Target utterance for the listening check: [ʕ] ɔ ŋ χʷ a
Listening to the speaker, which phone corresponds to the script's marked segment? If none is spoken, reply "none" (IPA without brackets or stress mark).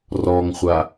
r